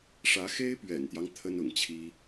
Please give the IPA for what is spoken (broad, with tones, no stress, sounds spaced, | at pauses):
ʂ ä˧˥ x e˥ ɪ̯ p ɥ ɛ̰˨˩ n t̪ j ɑ˦ ŋ t̪ʰ ə˥ n ʊ̰˨˩ ŋ t͡ɕʰ i˥